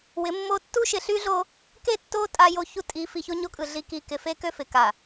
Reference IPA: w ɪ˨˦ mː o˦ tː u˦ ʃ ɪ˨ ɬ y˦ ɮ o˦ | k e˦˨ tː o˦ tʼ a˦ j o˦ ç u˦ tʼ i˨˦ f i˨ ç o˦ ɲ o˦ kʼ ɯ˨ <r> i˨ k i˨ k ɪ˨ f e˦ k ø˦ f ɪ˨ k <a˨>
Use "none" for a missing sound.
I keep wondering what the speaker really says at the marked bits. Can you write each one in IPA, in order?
ɮ, a˨

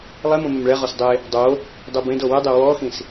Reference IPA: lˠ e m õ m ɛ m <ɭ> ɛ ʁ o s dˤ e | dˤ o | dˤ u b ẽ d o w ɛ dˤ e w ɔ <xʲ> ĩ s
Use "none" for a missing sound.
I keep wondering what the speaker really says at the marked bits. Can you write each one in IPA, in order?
ɭ, x

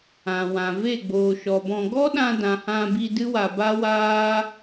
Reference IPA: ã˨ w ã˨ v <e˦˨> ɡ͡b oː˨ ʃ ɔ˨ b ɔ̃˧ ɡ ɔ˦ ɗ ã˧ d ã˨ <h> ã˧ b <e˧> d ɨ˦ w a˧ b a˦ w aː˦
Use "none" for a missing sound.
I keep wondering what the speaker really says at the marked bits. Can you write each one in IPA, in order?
e˦˨, h, i˧

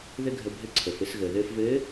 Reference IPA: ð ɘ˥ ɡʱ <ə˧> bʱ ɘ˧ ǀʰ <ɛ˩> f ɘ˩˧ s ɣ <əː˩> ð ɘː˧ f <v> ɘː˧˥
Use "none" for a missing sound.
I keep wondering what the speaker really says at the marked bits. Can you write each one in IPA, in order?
ə˧, ə˩, əː˩, v

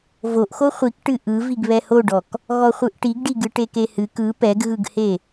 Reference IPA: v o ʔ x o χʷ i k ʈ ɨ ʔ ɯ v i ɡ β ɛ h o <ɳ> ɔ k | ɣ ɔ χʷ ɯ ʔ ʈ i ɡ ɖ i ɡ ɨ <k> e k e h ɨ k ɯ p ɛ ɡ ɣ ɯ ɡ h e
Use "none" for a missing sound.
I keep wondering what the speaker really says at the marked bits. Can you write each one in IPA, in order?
ɖ, ʈ

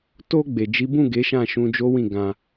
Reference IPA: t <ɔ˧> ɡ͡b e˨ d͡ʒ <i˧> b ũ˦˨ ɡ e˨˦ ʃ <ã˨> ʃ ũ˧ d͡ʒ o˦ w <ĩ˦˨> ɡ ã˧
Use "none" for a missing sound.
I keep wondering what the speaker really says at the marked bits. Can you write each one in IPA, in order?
o˧, i˨˦, ã˦˨, ĩ˦˨

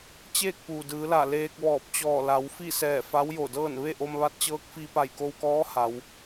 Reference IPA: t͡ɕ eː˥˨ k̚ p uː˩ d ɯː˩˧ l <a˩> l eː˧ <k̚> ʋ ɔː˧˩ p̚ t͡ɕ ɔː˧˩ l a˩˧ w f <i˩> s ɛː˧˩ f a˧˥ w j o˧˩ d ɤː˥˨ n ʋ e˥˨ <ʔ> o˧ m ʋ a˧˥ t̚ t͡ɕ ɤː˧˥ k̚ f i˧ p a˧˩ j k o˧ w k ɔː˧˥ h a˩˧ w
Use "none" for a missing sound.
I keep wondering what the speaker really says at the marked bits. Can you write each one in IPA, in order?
a˧˩, k̚, i˥˨, ʔ

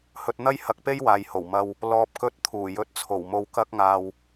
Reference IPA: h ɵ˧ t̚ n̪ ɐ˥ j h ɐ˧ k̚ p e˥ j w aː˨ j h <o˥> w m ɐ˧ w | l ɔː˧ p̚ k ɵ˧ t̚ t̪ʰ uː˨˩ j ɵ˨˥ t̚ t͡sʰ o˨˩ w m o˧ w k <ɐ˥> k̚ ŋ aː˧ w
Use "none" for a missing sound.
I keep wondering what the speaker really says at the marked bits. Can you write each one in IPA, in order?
o˨˩, ɐ˥

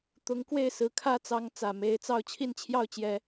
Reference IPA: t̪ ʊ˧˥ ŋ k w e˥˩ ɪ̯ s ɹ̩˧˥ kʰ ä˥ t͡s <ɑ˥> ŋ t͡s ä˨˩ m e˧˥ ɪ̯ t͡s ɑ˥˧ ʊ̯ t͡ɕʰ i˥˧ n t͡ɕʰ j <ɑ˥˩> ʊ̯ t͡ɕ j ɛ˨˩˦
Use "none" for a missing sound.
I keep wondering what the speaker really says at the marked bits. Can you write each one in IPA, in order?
ɑ˧˥, ɑ˥˩

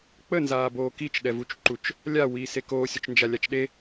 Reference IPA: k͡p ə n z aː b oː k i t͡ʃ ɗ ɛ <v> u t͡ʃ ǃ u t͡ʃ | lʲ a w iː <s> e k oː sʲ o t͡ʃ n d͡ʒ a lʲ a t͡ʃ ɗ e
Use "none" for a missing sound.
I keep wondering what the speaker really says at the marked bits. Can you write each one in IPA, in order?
v, s

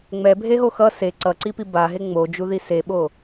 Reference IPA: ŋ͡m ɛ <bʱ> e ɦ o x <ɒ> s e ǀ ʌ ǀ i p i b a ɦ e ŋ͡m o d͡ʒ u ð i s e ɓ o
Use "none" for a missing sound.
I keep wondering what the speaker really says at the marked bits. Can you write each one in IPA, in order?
bʱ, ʌ

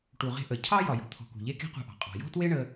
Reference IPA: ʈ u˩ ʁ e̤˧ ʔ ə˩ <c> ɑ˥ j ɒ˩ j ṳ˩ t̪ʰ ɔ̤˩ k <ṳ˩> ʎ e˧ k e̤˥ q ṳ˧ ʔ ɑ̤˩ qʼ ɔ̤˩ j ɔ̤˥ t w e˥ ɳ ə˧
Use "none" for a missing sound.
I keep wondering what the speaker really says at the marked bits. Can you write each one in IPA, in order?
cʰ, ṳ˩

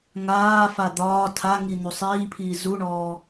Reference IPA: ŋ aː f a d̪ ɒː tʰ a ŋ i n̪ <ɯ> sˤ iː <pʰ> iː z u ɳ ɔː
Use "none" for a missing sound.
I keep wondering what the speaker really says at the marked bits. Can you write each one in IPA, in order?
u, pʰ

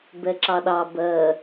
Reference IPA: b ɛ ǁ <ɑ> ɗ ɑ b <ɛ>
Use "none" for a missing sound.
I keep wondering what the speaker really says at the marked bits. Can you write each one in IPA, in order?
ɑ, ɜ

